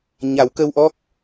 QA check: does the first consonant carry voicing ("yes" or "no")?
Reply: yes